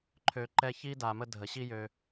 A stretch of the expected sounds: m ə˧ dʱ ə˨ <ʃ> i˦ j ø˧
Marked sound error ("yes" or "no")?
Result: yes